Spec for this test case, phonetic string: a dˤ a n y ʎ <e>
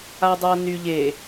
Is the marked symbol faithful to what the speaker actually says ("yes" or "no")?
yes